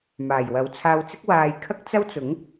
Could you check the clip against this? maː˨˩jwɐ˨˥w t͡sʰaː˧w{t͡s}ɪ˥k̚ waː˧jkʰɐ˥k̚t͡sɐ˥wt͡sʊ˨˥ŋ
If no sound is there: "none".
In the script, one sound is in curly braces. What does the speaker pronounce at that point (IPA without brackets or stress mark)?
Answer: t͡s